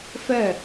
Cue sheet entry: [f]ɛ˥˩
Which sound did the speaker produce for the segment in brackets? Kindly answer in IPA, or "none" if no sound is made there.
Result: f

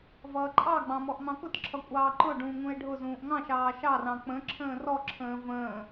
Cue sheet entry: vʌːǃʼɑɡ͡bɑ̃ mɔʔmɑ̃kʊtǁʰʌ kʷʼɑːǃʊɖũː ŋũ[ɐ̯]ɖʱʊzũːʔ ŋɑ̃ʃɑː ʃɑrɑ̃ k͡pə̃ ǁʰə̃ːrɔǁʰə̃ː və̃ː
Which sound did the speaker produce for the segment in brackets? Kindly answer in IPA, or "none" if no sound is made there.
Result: e̯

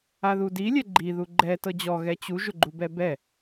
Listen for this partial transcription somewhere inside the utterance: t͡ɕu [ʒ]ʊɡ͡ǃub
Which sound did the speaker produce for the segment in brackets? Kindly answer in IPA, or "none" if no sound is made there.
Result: ʒ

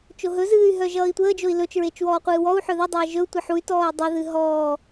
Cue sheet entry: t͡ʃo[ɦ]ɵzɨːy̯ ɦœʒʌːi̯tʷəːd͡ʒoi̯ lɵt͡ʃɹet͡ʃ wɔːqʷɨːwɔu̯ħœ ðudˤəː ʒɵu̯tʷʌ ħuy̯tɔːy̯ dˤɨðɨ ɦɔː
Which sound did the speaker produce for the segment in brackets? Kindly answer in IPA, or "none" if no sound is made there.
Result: ɦ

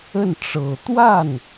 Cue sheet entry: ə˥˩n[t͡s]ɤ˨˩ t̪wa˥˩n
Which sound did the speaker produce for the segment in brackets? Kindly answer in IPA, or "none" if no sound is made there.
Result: ʈ͡ʂ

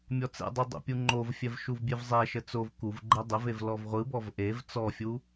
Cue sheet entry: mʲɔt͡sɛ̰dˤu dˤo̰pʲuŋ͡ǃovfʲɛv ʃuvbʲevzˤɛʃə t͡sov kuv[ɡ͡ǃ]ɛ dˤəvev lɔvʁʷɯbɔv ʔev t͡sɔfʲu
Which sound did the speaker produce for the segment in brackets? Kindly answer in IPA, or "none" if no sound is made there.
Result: ɡ͡ǃ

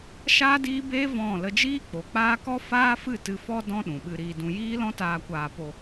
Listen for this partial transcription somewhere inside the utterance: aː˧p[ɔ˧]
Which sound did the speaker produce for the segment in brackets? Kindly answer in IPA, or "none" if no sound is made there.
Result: o˧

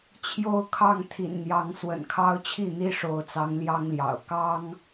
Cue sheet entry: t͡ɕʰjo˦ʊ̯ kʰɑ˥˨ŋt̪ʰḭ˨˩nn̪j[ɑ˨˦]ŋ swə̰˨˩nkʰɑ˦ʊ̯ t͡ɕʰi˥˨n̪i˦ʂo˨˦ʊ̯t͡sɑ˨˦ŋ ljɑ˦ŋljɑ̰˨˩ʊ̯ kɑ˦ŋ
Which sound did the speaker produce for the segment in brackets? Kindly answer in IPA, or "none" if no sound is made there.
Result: ɑ˨˦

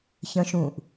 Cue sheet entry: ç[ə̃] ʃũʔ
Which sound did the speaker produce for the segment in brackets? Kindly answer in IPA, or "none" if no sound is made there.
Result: ə̃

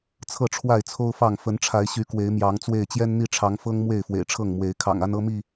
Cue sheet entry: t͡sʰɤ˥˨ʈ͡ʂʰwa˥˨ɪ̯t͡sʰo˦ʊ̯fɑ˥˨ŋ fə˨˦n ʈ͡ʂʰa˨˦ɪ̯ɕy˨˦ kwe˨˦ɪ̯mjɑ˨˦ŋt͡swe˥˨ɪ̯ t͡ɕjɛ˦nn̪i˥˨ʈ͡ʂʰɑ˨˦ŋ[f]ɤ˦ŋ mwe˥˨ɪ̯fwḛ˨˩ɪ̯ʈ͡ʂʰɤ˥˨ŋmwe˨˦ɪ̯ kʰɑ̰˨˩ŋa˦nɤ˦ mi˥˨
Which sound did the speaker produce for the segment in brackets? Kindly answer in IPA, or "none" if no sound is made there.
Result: f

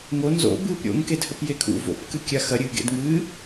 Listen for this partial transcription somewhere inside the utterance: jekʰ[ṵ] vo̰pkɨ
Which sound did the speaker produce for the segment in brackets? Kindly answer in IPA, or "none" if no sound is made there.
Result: ṵ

